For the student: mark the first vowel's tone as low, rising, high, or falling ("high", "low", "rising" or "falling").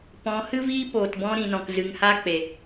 rising